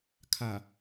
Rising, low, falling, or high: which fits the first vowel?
low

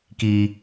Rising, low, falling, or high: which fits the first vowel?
low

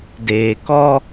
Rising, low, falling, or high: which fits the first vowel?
low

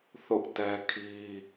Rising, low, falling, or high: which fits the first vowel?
high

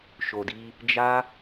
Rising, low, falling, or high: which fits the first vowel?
low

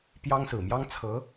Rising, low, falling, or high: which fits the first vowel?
high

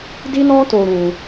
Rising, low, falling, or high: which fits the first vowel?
high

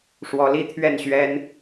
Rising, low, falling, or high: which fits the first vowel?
rising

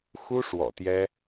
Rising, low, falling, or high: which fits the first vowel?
high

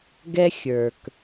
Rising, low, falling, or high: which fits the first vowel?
high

